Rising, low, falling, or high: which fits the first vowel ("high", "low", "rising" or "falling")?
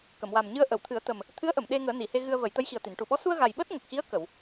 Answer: low